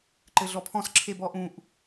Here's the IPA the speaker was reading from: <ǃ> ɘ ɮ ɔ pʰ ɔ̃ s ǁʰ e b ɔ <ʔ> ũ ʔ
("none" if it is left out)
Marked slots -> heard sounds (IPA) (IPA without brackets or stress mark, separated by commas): ǃ, ʔ